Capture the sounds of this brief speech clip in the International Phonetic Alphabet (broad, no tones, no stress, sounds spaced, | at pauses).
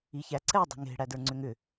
i ç æ ǀ ɛ dˤ ɛ̤ ŋ e̤ ɽ æ d ə˞ ŋ͡ǀ ʏ ŋ ʏ